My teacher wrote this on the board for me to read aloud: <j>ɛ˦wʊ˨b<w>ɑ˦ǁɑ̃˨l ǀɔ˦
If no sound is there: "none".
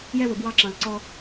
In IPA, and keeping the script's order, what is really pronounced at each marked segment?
j, w

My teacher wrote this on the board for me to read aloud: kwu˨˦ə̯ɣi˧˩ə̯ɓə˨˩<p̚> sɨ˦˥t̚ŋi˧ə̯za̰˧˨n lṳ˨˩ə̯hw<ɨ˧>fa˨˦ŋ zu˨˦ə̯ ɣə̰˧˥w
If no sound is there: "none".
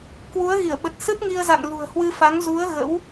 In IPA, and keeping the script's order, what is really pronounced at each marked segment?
t̚, ɨ˧

